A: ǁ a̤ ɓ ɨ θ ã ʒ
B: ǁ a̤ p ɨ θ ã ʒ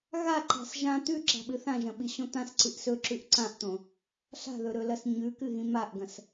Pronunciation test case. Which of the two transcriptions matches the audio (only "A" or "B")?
A